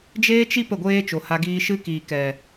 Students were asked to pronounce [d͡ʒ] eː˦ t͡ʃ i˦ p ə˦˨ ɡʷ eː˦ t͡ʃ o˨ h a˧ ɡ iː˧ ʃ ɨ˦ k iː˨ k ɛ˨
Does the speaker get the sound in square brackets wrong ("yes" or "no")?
no